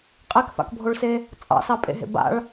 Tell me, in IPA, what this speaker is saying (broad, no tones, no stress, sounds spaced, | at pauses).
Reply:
qʼ e k f a̰ k bʱ o ɭ s e | t͡sʼ ɑ̰ s ɑ pʼ ḛ ɦ ḛ b a̰ ɭ